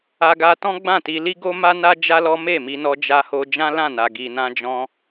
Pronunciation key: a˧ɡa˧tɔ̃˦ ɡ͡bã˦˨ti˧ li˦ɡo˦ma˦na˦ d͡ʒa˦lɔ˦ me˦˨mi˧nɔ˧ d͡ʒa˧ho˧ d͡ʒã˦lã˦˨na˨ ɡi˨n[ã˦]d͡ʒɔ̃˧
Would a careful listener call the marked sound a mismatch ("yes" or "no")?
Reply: yes